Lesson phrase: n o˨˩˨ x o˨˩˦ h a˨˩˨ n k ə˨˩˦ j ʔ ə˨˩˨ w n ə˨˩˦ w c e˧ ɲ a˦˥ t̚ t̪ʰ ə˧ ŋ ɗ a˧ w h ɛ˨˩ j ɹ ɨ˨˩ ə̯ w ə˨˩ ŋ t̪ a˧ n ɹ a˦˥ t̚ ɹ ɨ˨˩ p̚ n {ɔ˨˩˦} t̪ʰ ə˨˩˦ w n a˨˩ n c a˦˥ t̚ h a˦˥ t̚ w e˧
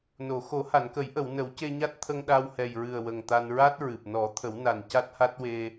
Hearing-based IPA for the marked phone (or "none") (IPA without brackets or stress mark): ɔ˨˩˦